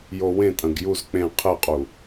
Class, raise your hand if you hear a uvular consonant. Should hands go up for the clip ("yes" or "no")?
yes